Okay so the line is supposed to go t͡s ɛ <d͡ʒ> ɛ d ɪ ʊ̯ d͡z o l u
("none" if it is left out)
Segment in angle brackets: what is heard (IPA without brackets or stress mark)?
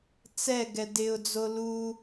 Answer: ɡ